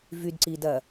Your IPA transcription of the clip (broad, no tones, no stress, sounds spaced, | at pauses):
v y d ǀ i d ɐ